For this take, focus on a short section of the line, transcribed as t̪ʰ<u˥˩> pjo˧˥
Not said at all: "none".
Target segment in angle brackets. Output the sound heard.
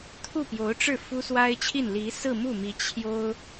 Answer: u˥˩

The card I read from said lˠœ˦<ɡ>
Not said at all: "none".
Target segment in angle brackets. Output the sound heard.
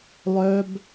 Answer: b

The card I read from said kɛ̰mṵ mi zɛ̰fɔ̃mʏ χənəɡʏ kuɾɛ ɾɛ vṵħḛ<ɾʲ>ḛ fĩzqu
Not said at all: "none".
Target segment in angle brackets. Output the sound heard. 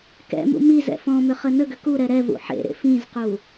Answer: ɾ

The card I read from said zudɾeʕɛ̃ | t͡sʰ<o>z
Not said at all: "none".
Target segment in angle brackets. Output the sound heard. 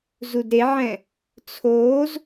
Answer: oː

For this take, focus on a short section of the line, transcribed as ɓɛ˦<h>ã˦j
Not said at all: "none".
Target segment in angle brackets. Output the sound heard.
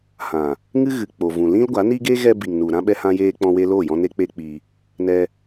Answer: h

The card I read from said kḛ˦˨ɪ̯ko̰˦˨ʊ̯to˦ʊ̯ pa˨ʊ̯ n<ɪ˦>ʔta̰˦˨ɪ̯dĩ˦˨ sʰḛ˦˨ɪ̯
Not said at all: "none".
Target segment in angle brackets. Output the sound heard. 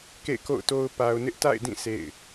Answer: ɪ˦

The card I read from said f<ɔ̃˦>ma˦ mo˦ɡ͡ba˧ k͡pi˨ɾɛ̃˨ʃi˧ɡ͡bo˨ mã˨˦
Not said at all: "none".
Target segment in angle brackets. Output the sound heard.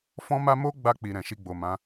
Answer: ɔ̃˦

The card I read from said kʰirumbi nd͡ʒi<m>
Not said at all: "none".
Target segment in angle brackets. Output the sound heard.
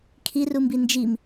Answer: m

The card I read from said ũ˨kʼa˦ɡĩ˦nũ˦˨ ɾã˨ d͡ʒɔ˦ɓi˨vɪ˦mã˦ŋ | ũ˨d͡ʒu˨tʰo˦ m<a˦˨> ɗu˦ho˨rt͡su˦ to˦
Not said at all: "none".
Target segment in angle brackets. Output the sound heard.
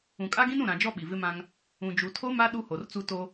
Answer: a˦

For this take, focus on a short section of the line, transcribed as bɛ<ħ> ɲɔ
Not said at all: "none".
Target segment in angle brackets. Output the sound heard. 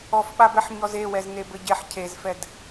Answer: ħ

